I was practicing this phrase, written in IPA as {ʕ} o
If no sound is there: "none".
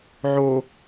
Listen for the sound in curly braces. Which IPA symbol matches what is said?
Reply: ʕ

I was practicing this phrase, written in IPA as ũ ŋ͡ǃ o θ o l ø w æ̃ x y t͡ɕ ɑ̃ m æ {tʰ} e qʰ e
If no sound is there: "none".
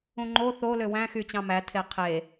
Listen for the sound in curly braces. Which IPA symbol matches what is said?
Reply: tʰ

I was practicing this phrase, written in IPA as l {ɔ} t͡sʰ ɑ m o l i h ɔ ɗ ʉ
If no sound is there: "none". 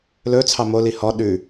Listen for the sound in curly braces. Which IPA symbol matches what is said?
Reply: ɵ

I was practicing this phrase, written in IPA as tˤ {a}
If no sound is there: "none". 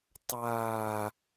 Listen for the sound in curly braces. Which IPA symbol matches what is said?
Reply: aː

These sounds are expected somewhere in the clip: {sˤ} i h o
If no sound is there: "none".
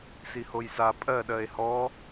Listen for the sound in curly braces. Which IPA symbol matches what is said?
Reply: s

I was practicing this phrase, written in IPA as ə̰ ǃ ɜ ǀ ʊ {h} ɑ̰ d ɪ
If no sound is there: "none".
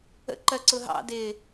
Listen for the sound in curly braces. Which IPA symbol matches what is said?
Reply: ɦ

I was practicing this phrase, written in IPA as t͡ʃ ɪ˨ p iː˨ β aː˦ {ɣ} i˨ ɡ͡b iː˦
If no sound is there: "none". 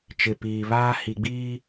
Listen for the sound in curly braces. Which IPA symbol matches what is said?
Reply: h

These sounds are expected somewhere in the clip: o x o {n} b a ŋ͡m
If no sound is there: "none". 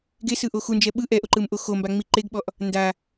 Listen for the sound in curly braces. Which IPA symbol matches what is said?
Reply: m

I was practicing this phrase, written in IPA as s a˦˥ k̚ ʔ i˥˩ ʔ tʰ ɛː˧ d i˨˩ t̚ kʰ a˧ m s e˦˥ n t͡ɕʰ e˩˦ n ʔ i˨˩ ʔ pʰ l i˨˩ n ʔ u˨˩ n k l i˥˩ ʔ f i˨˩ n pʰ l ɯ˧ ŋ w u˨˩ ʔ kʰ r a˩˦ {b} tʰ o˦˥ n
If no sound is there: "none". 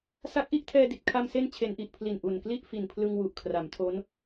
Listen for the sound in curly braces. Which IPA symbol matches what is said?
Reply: m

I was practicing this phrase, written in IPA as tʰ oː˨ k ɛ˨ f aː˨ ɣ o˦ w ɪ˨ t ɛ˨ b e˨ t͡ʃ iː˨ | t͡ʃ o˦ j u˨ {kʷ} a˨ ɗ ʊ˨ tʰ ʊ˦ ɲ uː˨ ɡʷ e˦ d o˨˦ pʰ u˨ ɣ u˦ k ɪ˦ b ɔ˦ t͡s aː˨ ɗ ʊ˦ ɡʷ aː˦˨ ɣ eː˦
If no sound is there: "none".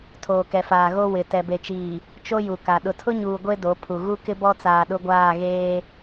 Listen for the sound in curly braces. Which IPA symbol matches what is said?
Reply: k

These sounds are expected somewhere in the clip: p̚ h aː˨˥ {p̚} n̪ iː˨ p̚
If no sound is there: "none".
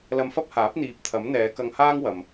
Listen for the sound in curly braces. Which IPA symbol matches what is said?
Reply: p̚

